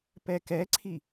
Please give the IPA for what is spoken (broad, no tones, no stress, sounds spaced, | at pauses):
p ɛ k ɛ ǀʰ i